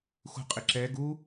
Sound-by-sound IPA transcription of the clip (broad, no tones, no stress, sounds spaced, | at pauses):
x ṳ qʼ ɪ ǁ ɛ ɡ u